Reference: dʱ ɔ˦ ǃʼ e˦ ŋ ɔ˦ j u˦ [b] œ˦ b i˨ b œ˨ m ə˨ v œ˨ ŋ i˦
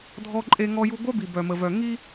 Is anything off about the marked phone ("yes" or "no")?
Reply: yes